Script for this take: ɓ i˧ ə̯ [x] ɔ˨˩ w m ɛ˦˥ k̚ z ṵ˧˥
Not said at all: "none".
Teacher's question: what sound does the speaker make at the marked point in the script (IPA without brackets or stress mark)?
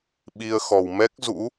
x